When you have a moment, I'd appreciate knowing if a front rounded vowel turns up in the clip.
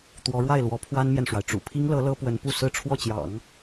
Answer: no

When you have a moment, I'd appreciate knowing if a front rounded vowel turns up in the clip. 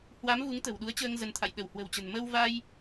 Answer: no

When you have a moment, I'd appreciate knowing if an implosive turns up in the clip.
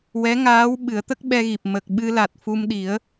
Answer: yes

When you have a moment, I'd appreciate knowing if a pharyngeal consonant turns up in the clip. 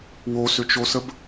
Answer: no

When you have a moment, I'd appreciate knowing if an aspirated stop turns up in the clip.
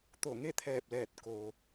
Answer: yes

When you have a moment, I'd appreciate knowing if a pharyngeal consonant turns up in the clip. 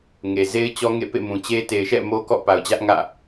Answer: no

